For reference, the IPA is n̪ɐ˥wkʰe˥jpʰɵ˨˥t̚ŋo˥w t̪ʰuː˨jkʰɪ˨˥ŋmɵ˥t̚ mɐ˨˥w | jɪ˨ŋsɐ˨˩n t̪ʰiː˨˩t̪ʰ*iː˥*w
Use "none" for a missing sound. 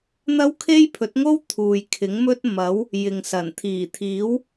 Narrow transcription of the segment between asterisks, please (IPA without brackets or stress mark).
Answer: iː˨˥